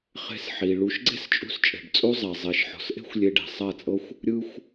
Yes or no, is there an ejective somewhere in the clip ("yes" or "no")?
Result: yes